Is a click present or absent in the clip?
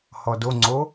present